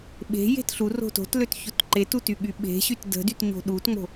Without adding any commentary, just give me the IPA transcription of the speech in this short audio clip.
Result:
ɓe̤ je̤tɬuro̤ to̤tløt çotǃetu tyɠyɓe̤ɕyt də̤dyt ɲo̤ɗutŋ͡mo̤

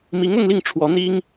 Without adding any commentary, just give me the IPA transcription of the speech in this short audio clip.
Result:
mi˧˥ŋʊ˥˧ŋli˥˩ŋ ʈ͡ʂʰwɔ˧˥ n̪i˥ŋ

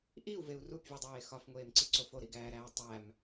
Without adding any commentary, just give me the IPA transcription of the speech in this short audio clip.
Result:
ʔiu̯veu̯ rupvʲudˤeː xɒfŋʷeːmǀiǀof oɾiɡæːɾæː tˤæm

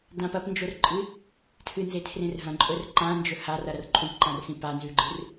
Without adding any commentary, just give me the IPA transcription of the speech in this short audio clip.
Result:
dãp ɐpnd͡ʒorǃʼɨ | tʰɨnzetʰrẽr ɦɐ̃ǃʼɵr ǃãnd͡ʒɵ harɐɾɐr ǃʼũpǃãrsĩ panzʉɡ͡ǃɨr

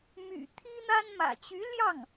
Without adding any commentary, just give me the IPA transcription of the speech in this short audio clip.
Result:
my̰˨˩ t̪ʰi˥n̪a˥nmä̰˨˩ t͡ɕy˧˥ljɑ˥˩ŋ

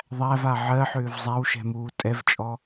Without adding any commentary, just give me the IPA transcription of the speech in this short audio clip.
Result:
ðˤæva ʕɜħʏːv zˤæwʃɛ̤muː tʼɛvt͡ʃʼɔ

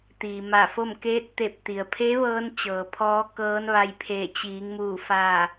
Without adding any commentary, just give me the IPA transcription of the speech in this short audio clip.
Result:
t̪iː˩ma˧˩fo˥˨m keː˧˥t̚t̪e˧˩p̚ t̪i˩ə̯pʰe˧˥ʋɤː˧n t͡ɕɤː˩pʰɔː˧˥ kɤː˧˥nʋa˧j pʰeː˧˩t͡ɕiː˩˧ŋ muː˧˩ fa˧˩

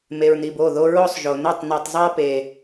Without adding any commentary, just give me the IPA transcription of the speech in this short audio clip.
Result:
me˨ɹn̪i˨bo˦˨ðo˦ ɹo˦sˤʒo˨nɛ˦˨tˤ ni˨tˤzˤa˦ pe˨

